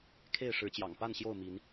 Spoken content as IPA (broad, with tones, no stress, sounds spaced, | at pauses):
kʰ e˥˨ ɪ̯ ʂ ɻ̩˨˦ t͡ɕ j ɑ̰˨˩ ŋ p a˥˨ n ɕ j o˥˨ ʊ̯ m i˨˦ n